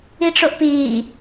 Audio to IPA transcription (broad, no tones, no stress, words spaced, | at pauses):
iʈ͡ʂoʔpiː